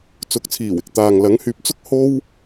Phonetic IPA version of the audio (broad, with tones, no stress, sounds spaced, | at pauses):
t͡s ʊ˨˥ k̚ t͡sʰ iː˨˩ w ɪ˨ k̚ t̪ aː˨ ŋ l ɐ˨˥ ŋ h yː˨ p̚ t͡s ʊ˥ k̚ h o˥ w